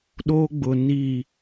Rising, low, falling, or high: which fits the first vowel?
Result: high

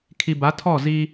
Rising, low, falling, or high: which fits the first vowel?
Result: low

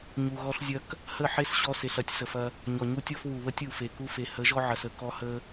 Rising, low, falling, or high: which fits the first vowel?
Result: low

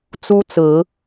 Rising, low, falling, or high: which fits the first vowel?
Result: high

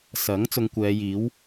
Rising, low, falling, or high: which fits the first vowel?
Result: rising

